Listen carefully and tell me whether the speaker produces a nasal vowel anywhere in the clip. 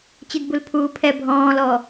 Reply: yes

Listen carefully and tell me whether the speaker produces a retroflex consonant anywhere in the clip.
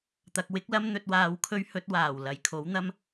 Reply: no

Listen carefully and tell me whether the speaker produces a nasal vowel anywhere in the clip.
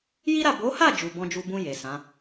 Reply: yes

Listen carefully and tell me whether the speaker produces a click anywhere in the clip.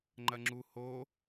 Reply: yes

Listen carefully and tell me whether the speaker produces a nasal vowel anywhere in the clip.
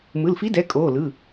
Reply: no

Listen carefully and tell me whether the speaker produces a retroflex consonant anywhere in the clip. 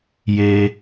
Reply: no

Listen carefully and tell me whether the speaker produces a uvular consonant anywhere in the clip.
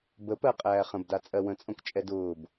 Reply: yes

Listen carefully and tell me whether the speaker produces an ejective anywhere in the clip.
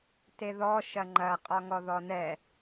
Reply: yes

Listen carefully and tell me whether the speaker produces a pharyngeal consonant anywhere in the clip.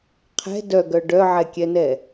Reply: yes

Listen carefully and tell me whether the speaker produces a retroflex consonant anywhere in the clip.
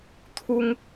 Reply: no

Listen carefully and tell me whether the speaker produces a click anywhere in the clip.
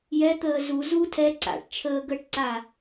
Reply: yes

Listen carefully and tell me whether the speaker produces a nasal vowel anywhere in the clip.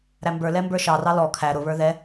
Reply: no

